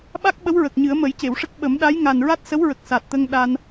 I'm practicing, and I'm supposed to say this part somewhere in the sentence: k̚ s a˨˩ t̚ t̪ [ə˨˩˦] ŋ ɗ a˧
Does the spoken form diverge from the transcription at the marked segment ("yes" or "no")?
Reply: yes